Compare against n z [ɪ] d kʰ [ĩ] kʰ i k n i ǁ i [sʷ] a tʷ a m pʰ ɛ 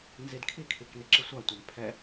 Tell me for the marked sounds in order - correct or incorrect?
incorrect, incorrect, correct

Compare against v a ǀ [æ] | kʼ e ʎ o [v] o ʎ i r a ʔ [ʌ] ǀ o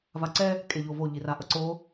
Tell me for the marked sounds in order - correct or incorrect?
incorrect, correct, correct

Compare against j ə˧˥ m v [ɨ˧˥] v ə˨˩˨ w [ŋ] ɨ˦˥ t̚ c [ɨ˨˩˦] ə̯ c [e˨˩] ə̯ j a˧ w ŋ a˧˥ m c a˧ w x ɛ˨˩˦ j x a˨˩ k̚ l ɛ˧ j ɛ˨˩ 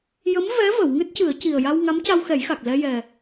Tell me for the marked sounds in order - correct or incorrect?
incorrect, correct, correct, incorrect

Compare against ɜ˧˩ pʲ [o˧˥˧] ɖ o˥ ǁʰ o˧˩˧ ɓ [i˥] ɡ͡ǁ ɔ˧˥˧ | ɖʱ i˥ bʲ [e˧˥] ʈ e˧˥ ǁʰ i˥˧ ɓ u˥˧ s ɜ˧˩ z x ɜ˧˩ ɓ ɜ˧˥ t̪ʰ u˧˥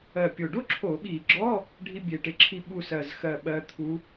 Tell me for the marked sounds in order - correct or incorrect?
incorrect, incorrect, incorrect

